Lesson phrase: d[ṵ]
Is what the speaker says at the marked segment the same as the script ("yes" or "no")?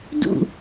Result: yes